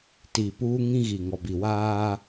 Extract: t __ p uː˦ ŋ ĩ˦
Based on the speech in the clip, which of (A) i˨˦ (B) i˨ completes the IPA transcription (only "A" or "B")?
B